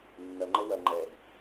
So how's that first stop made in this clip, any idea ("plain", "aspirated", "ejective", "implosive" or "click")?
click